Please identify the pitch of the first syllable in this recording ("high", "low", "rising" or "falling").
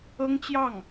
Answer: high